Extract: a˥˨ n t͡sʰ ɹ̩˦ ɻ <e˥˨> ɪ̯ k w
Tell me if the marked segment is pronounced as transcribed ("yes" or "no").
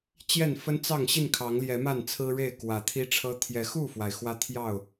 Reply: yes